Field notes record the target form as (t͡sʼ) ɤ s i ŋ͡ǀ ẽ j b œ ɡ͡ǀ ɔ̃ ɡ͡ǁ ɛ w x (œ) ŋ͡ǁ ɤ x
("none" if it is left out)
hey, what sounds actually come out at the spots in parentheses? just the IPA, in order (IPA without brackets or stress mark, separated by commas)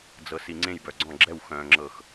d͡z, œ̃